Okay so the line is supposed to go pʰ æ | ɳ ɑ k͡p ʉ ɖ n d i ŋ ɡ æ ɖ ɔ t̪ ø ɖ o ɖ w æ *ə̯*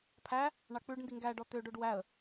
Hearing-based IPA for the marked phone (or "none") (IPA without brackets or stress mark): ə̯